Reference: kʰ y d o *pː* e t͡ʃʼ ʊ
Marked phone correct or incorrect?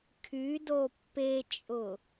correct